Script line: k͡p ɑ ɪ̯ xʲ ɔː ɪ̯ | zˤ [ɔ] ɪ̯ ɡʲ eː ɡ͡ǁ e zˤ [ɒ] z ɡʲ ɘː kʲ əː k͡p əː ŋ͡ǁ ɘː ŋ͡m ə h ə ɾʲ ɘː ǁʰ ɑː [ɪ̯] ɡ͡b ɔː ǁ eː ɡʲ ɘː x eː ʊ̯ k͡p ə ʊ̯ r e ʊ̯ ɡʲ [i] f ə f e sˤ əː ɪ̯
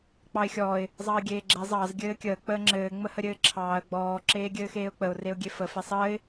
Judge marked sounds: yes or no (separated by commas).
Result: no, no, no, no